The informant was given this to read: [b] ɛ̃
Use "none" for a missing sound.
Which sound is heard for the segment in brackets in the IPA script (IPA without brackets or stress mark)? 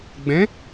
ɡ͡b